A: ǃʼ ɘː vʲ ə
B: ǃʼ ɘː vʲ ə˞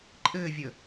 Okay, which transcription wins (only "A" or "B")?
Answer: A